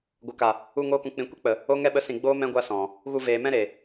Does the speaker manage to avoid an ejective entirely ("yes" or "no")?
yes